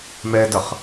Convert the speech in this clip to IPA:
m ɛ d ʌ χ

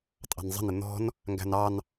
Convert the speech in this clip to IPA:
tʼ ɑ̤ n zˤ ə̤ n ɪ n̪ ɔ̤ n | ŋ ɡ æ̤ n ɑ n

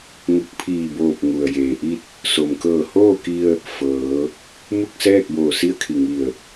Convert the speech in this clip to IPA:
ŋ u˧˩ k̚ pʰ iː˧˩ b oː˧˩ p̚ ŋ u˩ ə̯ j eː˩ ʔ i˥˨ t̚ | s o˩ m k ɤː˧˩ h oː˥˨ k i˧ ə̯ | f ɤː˩˧ | m u˥˨ k̚ s ɛː˥˨ k̚ b oː˧˩ s i˥˨ ə̯ kʰ i˧˩ ŋ i˧˩ ə̯

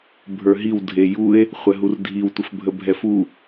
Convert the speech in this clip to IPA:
bʱ ə˞ ɦ i w dʱ e j u e̯ | χʷ ɛ ɦ u r dʱ i w tʷ ə f bʱ ə bʱ ɛ f u

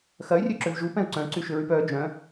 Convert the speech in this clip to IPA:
x ɐ y̯ rʲ ø ǁ ø v ʒ u p ɛ̃ u̯ ǀ œ̃ ǀ y ʃ ʏ ɹ y p œ d͡ʒ œ̃

